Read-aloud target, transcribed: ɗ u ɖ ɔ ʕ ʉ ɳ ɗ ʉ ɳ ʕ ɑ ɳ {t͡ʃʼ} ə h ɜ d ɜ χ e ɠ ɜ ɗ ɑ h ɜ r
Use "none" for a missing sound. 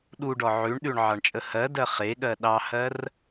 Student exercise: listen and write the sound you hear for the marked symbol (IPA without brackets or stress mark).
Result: t͡ʃʼ